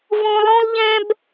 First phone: v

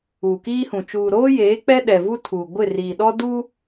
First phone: uː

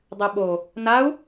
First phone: dˤ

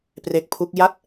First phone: p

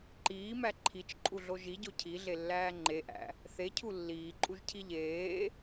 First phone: ǃ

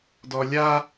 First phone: d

